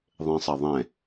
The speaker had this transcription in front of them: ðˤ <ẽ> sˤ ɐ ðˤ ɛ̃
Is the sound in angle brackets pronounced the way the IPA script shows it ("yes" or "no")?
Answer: yes